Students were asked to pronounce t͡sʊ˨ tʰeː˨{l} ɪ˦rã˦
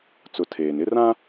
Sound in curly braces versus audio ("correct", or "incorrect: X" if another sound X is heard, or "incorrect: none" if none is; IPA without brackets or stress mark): incorrect: n